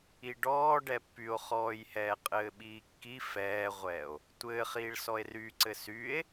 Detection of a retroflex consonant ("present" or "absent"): present